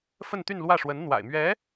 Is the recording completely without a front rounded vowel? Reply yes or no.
no